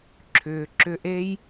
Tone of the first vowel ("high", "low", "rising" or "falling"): low